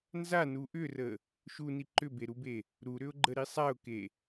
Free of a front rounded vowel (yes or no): no